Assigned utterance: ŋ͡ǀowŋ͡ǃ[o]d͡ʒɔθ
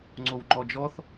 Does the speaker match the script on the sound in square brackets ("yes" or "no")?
no